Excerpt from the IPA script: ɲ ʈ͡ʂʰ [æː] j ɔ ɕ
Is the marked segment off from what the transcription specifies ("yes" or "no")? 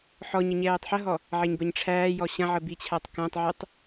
no